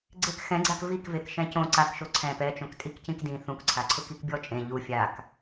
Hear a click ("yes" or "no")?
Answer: yes